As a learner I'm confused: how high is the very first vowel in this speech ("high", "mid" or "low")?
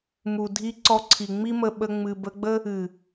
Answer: high